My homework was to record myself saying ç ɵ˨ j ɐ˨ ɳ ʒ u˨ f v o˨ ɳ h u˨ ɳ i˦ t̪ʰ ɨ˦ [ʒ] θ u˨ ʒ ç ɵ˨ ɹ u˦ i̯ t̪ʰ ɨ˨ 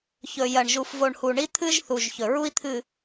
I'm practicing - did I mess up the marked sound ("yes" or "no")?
no